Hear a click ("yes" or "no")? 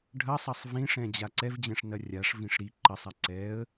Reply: yes